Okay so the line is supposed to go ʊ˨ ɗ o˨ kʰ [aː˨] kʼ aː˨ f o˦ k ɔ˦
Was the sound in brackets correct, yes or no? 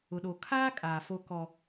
no